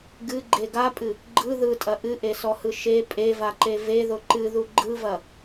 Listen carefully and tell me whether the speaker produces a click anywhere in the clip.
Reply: yes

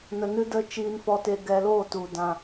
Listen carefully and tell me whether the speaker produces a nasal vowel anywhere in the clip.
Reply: yes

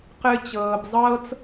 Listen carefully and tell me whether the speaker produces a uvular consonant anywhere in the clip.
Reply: yes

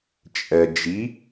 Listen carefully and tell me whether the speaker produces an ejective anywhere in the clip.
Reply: yes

